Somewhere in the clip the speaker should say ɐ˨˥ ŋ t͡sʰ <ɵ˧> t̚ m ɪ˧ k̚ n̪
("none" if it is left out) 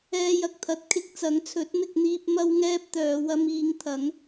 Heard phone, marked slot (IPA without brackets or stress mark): ɵ˨˥